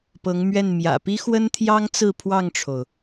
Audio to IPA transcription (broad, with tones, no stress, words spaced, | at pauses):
pɤ˧˥ŋmɥɛ˥˩n mjä̰˨˩ pi˥xwə˥nt̪ʰjɑ˥ŋ t͡sɹ̩˥˧pʰwɑ˥˩ŋʈ͡ʂʰo˩ʊ̯